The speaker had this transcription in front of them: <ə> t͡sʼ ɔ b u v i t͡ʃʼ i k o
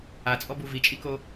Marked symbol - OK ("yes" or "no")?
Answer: no